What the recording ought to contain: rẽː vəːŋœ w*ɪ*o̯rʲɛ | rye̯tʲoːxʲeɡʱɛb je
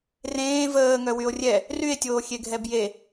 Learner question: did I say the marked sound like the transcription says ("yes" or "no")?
no